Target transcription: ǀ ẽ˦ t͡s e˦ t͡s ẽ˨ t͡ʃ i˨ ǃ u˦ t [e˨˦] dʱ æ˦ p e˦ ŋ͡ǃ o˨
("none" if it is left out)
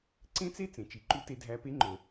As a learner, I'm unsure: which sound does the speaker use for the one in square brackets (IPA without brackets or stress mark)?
e˦